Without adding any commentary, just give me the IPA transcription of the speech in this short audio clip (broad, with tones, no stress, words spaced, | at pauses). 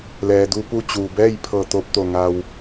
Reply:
lɛː˩du˧ pu˧ t͡ɕuː˩bɛː˥˨j pʰɤː˧˩t̪oː˧p̚ t̪o˧˩ŋa˧w